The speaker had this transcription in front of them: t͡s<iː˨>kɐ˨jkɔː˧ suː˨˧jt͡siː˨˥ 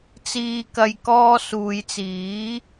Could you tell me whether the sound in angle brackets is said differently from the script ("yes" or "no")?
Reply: no